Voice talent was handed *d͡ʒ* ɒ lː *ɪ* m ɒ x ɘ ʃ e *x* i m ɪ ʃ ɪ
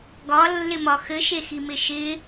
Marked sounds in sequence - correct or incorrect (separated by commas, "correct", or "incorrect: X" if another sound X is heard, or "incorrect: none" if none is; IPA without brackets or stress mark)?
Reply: incorrect: ɡ, correct, correct